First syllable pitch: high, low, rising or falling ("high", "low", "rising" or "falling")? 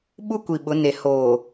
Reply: high